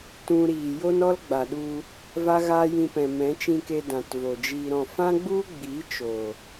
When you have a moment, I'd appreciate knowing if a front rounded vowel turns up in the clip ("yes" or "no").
no